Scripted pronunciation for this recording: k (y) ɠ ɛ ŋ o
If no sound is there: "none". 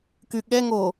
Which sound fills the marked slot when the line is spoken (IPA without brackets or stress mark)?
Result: y